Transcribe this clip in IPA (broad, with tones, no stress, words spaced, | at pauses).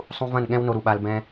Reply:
sˤũ˧vɐ̃˦˨nɠɛ̃˦w no˧ɾu˨ɓa˧l bɛ̃˦